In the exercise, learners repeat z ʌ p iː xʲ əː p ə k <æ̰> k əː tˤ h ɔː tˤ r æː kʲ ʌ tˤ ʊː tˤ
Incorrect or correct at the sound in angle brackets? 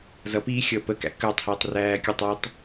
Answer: correct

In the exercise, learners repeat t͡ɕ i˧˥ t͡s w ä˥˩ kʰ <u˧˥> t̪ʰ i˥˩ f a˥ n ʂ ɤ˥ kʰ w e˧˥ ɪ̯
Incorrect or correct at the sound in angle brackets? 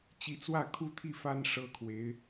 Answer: incorrect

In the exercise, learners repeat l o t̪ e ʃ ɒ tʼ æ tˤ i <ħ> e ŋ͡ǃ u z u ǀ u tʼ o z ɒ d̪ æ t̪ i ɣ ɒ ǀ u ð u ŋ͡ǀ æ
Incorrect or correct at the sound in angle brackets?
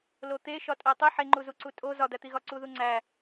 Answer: correct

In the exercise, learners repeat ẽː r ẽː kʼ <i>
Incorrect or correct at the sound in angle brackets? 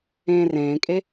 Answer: incorrect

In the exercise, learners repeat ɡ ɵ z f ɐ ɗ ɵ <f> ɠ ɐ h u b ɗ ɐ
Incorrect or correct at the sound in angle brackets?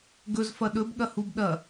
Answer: incorrect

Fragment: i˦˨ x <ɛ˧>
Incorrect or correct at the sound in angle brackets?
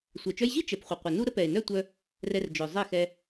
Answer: correct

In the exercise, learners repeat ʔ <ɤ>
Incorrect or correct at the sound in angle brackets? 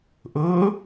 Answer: correct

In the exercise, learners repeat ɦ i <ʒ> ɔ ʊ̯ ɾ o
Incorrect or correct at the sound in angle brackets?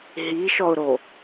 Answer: incorrect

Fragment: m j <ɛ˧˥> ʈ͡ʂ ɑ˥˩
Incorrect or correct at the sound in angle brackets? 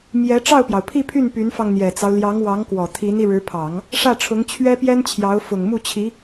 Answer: correct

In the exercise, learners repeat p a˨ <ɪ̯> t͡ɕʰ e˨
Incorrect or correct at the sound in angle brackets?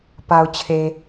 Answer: incorrect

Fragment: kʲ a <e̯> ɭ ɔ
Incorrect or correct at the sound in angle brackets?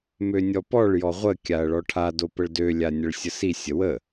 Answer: incorrect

